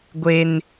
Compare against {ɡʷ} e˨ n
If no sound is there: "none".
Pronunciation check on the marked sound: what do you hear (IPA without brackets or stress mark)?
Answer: ɡʷ